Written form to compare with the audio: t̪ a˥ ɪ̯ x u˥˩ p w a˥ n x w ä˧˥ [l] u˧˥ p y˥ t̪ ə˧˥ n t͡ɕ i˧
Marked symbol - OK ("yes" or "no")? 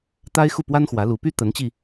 yes